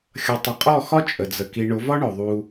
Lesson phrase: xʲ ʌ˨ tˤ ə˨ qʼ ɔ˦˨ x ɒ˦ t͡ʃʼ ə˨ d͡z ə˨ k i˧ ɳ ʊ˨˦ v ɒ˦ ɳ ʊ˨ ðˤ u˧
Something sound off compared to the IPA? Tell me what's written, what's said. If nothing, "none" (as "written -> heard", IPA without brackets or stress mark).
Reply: none